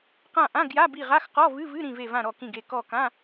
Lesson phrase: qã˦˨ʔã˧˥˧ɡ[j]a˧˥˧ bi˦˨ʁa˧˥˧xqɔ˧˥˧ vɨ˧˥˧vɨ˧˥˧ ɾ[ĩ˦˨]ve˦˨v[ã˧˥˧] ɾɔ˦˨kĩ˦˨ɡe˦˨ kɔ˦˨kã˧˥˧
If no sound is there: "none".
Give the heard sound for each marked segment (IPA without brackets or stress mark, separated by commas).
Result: j, ĩ˦˨, ã˦˨